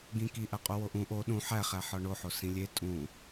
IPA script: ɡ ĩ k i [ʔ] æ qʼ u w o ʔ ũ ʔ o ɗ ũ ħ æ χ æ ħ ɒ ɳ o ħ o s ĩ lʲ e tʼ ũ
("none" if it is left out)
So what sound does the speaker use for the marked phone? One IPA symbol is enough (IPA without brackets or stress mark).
ʔ